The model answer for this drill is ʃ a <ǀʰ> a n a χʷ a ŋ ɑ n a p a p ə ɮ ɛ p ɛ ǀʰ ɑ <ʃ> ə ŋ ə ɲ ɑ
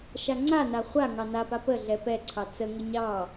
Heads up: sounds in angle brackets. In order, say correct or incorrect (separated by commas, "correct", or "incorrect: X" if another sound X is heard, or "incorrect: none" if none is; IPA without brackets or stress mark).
incorrect: ŋ͡ǀ, incorrect: t͡s